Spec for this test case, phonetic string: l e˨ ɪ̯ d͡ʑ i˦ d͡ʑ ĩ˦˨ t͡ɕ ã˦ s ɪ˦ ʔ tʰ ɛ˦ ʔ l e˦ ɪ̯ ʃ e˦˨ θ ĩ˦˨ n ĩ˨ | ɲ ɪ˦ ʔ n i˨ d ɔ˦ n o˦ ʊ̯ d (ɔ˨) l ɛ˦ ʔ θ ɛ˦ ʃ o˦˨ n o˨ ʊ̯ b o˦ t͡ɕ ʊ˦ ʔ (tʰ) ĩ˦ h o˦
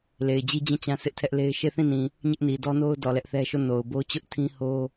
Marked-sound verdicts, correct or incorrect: correct, correct

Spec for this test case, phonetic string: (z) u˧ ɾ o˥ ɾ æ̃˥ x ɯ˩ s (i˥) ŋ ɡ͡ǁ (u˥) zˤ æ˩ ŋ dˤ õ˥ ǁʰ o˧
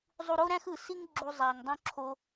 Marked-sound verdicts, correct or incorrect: incorrect: zˤ, correct, incorrect: u˧

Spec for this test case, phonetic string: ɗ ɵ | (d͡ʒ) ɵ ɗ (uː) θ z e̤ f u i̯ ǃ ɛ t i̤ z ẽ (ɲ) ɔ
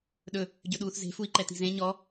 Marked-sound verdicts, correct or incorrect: incorrect: ɟ, correct, correct

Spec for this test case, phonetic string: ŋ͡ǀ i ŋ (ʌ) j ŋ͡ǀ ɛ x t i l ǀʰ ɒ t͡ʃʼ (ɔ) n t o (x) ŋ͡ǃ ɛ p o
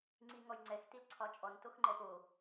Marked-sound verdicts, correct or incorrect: incorrect: ɔ, correct, correct

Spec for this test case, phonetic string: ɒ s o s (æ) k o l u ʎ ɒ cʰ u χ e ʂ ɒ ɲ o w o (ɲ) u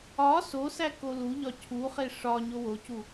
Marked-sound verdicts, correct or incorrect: correct, incorrect: c

